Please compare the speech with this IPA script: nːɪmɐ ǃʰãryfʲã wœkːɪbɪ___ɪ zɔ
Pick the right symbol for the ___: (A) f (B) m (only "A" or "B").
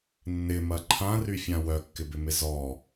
B